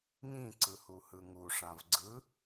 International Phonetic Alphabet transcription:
ŋĩǀɯhuhɯ ŋuʂãv ɡ͡ǀɯ

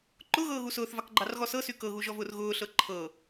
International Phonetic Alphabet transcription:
ǃʊɣɤːɣu sʊːθvɑkɡ͡ǃɑrɣɔ sɤsy kɤɣuʒɔvʊːr ɣʊːɬɤ ǃʰɤ

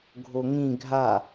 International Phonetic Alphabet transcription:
ɡʱoŋĩ ɡʱa

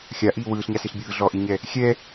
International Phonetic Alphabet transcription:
xʲaʔiː wɯːɬɲa sɪɬbʲɯː ɮɔʔiɲɛ | xʲɛ

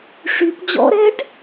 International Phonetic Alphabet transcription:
ʂyp d͡ʑɔ̰ɾɛɖ

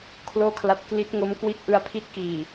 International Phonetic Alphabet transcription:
kʰloː˥˩kʰla˦˥t̚ kli˦˥t̚ŋo˦˥m kwi˦˥t̚ʔɯ˧a̯pʰi˦˥t̚ kiː˨˩

